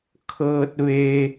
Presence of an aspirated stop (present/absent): present